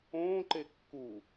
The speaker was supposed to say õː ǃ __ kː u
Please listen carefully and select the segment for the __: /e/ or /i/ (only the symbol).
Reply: e